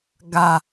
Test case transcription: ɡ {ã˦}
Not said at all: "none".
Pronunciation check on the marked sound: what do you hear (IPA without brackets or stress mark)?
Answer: a˦